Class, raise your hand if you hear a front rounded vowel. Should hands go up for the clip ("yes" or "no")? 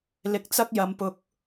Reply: no